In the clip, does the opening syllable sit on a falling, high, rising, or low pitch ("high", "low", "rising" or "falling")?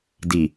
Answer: low